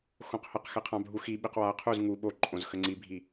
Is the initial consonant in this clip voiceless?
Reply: yes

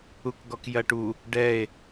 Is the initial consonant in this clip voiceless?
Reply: yes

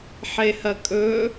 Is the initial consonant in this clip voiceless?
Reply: yes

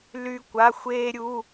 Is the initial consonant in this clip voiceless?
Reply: no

